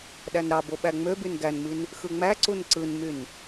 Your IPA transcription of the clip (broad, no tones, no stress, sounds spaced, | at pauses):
ɗ æ n ɾ ɑ b o ɓ æ ŋ͡m ø b y n ɡ æ n m i n | x ɯ ŋ͡m æ ǀ u n ǀ ɯ n m y n